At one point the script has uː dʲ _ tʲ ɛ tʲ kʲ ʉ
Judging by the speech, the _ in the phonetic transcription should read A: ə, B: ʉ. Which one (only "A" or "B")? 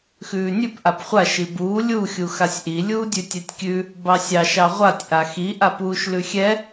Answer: B